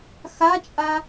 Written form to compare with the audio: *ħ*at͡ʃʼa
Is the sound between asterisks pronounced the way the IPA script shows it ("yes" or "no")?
no